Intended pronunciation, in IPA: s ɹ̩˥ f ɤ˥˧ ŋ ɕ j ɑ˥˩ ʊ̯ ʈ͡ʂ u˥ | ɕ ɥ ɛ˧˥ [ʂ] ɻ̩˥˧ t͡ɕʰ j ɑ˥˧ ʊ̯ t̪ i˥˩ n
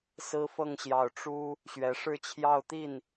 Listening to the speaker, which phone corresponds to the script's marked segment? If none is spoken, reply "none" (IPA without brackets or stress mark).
ʂ